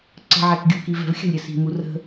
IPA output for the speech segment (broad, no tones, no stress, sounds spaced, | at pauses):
ǀ ə̤ ʕ æ k ɡʲ u k i v ɛ̤ v xʲ ə̤ lʲ ɾʲ ə s i̤ m u r ə̤